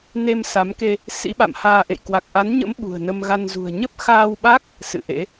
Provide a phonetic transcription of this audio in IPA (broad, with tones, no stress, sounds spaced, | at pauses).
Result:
n e˧ m s a˨˦ m k e˧ | s ḭ˧˥ ɓ a̰˧˨ m h aː˧ ʔ ḛ˧˨ j k w a˨˩ k̚ ʔ a˨˦ n ɲ ə̰˧˥ m ɓ ṳ˨˩ ə̯ n ə˧ m ɣ a˧ n z ṳ˨˩ ə̯ ɲ ə˦˥ p̚ x aː˧ w ɓ a˦˥ k̚ | s ɨ̰˧˨ ʔ ḛ˧˥